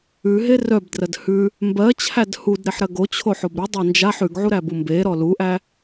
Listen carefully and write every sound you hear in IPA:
ʉ ɦ e r œ b d r ɜ d h ʉ | m b ɜ t͡ɕʰ æ d h u d ɾ e ħ ɾ ɜ ɡ o t͡ɕʰ o ħ o b ɾ ʉ dˤ æ n d͡ʒ a ħ ʉ ɡ ʕ u ɾ æ b u m b e ɾ ɔ l u ʔ æ

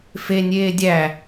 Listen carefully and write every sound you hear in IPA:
f e nʲ eː dʲ æ

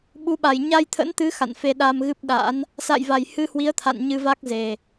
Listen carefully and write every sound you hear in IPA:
ɓ u˨˦ ɓ a˨˩ j ɲ a˧ j t̪ʰ ə̰˧˥ n t̪ ɨ˨˦ x a̰˧˨ n f e˧ ɗ a˧ m ɣ ɨ˦˥ p̚ ɗ a̰˧˥ n | s a̰˧˨ j v a˨˩ j h ɨ˧ h w i˨˦ ə̯ t̪ʰ a̰˧˨ n ɲ ɨ˧ v a˦˥ k̚ z e˨˩

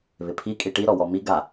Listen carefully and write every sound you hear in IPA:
β ɪ pʰ i kʼ i ʈ i ɾ ɔ w ɔ m i ɡ a

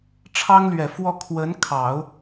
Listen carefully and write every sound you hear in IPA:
ʈ͡ʂʰ ɑ˥ ŋ l ɥ ɛ˨˩ f w ɔ˥˩ kʰ w ə˧˥ n kʰ ɑ˨˩˦ ʊ̯

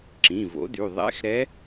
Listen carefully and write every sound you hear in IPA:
ǁ ĩ˩˧˩ v o̰˩˥ d y˩˧˩ ðˤ ɛ̰˧˥˧ x ɾ ɛ˧˥

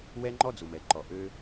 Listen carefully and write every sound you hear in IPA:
w ɛ˦ ŋ͡ǃ ɔ˦ d͡z u˨ m ɛ˨ ǃ ɔ˨ ʔ ø˧

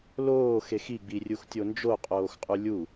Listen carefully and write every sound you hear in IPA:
l oː x e x i ɡ͡b i rʲ u x tʲ o n d͡ʒ o qʼ oː x qʼ u lʲ u

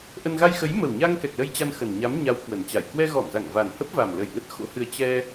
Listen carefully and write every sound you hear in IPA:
ʔ ə˧ n ɣ a˧ j x ə˨˦ j m ə˨˩ w ɲ a˧ ŋ k ɛ˨˩ k̚ l ə˧ j t͡ɕ a˧ n x ə˨˩ n ɲ a˨˦ m ɲ a˨˦ w k w ə˨˩ n t͡ɕ a˧˩ j k w ɛ˧ ɣ ɔ˧˩ m z a˧˩ ŋ v a˨˩ n h ə˦˥ p̚ v a˨˩ m l ə˧˩ j ŋ ə˦˥ t̚ x o̰˧˥ h ɨ˧ ə̯ t͡ɕ ɛ˧

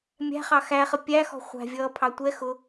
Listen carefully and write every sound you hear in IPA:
mʲ æ̤ χ ɑ x æ χ ə pʲ æ x ɔ̤ χʷ æ̤ vʲ ʌː pʰ ɑ tʷ ɛ x ʊ

